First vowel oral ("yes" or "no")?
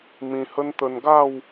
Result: no